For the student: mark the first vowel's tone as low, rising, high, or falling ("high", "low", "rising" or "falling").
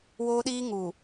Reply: high